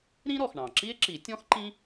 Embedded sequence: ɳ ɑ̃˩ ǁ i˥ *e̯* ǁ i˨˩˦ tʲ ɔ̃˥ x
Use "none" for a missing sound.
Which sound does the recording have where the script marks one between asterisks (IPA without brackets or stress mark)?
e̯